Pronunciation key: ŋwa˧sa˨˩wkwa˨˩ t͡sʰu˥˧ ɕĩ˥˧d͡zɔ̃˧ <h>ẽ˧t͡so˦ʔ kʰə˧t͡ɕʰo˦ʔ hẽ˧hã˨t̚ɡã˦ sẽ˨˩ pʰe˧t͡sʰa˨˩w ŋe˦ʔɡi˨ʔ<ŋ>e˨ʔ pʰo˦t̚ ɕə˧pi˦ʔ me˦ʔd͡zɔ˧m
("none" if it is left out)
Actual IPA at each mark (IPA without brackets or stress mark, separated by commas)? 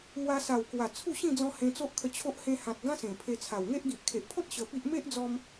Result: h, kʰ